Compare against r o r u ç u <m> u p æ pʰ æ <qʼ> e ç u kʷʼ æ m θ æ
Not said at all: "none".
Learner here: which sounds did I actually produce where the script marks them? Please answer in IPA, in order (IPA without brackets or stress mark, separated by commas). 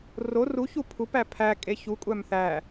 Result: pʰ, kʼ